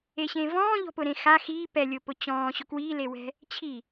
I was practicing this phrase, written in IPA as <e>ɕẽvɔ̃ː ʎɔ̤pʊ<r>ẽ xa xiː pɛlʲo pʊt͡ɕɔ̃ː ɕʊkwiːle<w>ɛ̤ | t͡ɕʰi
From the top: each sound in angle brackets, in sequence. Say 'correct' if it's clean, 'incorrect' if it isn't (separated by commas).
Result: correct, incorrect, correct